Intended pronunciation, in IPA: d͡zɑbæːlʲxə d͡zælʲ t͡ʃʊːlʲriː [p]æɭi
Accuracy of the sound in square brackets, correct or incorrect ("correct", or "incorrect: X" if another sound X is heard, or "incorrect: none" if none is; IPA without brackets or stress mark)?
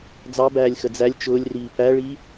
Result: correct